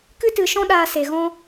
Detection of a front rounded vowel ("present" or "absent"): absent